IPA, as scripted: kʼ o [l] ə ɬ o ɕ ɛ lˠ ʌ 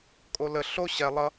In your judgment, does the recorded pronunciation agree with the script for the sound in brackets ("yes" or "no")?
yes